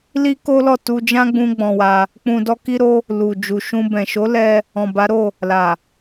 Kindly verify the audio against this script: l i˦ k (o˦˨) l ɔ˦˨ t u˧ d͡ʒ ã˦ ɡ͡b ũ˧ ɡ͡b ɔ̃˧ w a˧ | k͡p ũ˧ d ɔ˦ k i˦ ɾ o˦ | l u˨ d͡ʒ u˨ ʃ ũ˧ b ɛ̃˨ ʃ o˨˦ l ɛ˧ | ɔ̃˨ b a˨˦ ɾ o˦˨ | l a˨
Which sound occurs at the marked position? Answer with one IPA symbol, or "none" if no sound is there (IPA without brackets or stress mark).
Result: o˦